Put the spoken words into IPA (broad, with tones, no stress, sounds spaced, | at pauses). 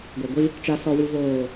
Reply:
ɡʷ a˨ ɡʷ i˦ | t͡ʃ a˨ s ɔ˨ w i˨ v oː˨